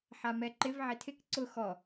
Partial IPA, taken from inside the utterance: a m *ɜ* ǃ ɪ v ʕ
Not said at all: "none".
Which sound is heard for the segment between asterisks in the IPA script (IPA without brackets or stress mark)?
ɛ